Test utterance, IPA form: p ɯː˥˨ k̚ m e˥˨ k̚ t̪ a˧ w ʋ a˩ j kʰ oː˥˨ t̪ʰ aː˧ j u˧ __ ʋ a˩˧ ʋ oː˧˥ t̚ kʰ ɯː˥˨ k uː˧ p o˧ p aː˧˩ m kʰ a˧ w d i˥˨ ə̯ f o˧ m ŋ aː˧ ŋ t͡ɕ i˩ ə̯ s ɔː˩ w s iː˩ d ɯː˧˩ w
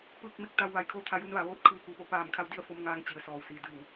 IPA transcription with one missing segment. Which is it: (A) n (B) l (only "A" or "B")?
A